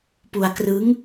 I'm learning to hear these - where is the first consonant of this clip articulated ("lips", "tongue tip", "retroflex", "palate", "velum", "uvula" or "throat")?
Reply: lips